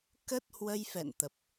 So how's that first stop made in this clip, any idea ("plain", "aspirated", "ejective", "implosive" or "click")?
plain